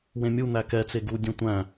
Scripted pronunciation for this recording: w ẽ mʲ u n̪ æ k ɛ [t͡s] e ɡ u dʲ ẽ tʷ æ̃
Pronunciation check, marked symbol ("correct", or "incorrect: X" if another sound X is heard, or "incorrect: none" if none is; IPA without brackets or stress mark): correct